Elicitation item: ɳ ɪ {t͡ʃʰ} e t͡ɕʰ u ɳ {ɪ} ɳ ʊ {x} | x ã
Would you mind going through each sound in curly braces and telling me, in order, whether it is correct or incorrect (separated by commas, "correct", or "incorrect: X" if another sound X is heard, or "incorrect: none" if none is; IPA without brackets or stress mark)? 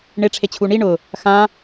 incorrect: ʈ͡ʂʰ, incorrect: i, incorrect: none